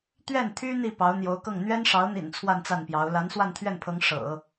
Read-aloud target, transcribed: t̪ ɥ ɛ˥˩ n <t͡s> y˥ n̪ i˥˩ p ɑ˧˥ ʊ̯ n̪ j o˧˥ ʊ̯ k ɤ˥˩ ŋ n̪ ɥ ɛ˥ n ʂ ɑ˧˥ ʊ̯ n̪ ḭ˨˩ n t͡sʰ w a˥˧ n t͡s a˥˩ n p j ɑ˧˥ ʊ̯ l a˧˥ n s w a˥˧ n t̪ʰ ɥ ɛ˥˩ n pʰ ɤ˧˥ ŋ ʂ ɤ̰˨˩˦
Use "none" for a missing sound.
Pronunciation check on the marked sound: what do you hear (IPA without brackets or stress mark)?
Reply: t̪ʰ